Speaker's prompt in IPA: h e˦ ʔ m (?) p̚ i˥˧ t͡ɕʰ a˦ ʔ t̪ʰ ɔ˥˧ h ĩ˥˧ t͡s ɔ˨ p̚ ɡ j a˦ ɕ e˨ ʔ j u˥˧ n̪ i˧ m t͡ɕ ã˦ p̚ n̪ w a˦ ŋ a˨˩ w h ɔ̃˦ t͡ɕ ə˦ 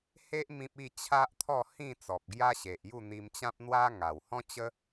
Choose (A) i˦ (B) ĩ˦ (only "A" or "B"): B